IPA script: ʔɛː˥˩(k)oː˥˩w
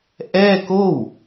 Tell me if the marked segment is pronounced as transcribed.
yes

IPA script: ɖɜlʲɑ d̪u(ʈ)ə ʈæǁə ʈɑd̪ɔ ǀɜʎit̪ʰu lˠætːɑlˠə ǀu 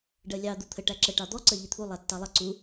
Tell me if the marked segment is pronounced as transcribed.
no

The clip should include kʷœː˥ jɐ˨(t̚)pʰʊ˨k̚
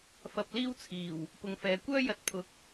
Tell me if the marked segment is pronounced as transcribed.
yes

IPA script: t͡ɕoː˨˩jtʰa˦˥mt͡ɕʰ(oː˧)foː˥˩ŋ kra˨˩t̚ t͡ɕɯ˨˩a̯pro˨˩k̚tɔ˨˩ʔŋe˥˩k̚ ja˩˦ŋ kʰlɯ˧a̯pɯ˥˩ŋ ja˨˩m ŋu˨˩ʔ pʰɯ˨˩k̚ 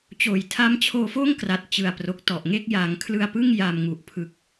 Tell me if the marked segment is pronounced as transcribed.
yes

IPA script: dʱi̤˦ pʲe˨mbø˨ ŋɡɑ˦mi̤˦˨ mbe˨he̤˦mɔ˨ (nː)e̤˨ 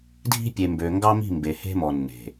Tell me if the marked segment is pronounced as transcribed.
yes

